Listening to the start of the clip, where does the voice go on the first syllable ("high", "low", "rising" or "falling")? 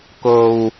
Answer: low